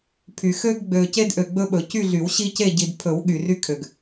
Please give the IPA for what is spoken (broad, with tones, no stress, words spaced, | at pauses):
pʰy˨ xø˦ɡɡ͡bø˨ce˦dʔø˨ ɡ͡bɵ˦ɓɵ˨ cy˦˨ɮy˨˩˦wɕi˦ce˦˨ ɟi˨dpʰɵ˨˩˦w ɠy˨ry˦kʰø˨ɡ